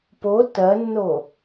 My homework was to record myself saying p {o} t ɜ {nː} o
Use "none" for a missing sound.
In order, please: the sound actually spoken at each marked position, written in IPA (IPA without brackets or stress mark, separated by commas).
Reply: o, nː